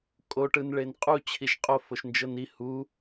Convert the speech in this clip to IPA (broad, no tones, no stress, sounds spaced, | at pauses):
kʼ o ʈ ɯ n ɭ e n qʼ u t͡ɕʰ i ʃ qʼ o f o ʃ n d͡ʒ ɤ n i h u